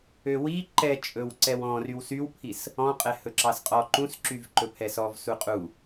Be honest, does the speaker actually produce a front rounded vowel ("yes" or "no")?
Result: yes